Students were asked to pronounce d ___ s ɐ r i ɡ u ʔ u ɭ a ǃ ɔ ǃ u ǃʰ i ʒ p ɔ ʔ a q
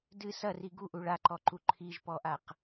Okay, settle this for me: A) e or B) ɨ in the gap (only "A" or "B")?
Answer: B